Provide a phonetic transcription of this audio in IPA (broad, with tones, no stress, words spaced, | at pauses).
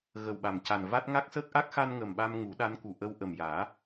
ɣə˨˩wɓa˨˩mca˨˩nva˦˥t̚ ŋa˦˥k̚səː˦˥k̚ʔa˦˥k̚ xa˧n ŋə˨˩mɓa˧m ŋu˨˩˦ɗa˧˥nku˨˩ ʔə˧w ʔə˨˩mjaː˨˩˦